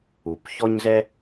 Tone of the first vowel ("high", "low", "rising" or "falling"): low